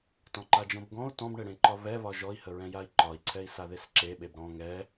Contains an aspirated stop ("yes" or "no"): yes